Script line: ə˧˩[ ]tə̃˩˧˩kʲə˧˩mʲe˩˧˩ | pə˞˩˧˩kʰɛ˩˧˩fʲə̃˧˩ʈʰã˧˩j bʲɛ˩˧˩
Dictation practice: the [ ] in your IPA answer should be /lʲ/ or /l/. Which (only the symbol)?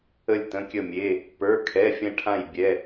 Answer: lʲ